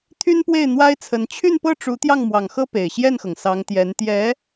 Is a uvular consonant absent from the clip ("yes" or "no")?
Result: yes